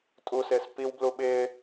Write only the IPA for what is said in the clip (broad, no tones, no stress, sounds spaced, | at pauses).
tʼ u s ɪː s p i w b l u ɓ ɪː